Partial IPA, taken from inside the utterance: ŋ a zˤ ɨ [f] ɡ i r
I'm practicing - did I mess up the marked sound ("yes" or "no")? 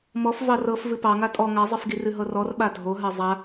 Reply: no